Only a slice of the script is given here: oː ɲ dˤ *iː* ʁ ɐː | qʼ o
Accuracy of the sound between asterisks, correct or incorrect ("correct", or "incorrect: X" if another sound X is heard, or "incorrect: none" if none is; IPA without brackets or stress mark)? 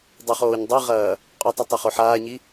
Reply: incorrect: i